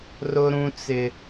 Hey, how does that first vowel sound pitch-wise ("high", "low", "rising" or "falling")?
high